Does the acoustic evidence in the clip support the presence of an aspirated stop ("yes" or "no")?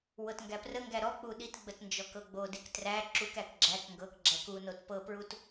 no